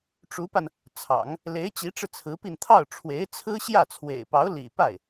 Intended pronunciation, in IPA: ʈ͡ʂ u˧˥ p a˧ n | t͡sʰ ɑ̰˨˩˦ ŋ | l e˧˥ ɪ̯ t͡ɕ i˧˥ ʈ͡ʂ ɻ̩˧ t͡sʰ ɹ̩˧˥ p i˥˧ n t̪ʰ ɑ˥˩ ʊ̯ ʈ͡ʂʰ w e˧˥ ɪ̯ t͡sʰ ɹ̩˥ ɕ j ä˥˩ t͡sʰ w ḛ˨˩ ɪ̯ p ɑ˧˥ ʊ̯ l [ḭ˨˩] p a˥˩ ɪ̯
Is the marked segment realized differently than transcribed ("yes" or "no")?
no